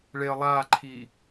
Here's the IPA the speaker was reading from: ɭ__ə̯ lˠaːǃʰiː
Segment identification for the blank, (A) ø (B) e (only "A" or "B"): B